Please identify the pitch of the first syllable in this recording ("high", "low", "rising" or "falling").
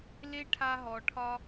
high